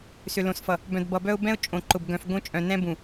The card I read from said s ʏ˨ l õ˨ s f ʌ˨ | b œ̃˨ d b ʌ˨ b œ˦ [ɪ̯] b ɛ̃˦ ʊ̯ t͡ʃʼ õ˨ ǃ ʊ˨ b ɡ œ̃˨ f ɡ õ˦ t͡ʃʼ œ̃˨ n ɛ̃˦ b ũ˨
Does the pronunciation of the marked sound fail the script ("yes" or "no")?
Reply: yes